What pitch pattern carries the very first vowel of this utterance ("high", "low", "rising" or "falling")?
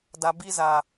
low